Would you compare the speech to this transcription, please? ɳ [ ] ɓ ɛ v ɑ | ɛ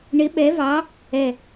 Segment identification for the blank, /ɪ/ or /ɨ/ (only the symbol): ɪ